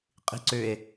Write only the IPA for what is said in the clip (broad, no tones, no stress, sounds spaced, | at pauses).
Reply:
qʼ i̤ ǀ ʏ e̯